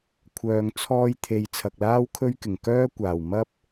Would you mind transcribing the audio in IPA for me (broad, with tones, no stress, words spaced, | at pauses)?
kʷʰœː˨ŋt͡sʰɔː˧jt̪ʰe˨j t͡sʰɐ˨k̚laː˥wkʰɵ˥ɥkɪ˨˩ŋ kœː˥kʷaː˨˩w mɐ˥p̚